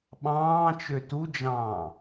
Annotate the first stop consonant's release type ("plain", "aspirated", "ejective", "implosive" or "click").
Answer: implosive